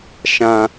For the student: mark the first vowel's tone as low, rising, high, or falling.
low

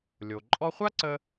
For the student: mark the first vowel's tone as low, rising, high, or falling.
low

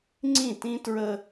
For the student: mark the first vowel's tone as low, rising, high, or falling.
falling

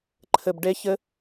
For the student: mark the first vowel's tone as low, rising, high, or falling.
low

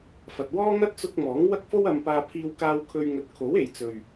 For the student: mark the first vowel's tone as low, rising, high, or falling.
low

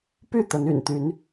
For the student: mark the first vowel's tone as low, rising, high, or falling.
falling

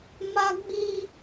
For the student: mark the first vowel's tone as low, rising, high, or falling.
high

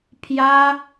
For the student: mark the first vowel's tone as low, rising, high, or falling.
high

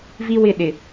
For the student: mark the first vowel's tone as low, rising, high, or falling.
high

